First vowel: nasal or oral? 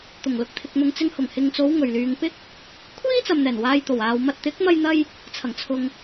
oral